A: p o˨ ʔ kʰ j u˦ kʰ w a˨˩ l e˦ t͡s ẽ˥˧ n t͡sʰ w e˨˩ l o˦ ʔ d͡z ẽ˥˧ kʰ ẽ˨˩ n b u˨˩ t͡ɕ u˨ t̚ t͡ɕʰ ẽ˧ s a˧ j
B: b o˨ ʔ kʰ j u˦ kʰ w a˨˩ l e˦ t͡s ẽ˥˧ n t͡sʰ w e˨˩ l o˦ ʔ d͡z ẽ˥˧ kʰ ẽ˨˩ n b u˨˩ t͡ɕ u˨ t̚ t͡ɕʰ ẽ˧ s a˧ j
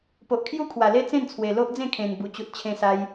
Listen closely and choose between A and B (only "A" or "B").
A